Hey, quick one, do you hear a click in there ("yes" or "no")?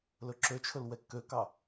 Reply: yes